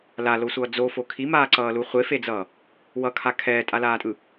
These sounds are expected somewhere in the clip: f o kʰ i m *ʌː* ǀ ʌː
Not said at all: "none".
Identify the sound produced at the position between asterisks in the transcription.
aː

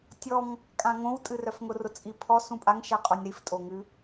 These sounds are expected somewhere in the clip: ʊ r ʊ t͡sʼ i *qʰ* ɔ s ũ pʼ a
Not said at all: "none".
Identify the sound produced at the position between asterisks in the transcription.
pʰ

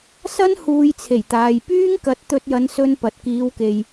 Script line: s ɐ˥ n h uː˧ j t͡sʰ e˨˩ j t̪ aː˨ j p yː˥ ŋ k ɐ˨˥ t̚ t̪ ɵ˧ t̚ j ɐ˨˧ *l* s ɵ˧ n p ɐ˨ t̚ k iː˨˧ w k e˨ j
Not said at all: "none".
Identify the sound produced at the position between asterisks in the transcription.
n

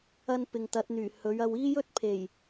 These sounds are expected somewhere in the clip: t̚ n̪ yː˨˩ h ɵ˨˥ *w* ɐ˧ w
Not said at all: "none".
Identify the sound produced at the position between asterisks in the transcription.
ɥ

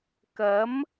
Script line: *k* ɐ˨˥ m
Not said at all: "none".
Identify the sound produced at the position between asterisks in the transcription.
k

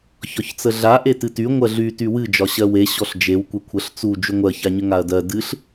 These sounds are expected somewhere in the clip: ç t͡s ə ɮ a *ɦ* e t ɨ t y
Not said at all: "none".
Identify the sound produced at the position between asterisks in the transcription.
ʔ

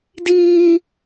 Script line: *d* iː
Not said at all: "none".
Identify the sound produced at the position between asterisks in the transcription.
d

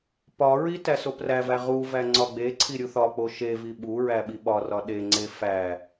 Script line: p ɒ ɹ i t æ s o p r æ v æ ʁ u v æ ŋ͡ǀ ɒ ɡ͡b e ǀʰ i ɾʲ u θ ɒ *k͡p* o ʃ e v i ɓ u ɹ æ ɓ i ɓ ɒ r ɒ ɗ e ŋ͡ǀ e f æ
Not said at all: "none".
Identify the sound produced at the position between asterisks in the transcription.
k͡p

